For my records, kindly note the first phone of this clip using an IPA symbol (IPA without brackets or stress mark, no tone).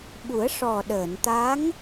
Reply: ɓ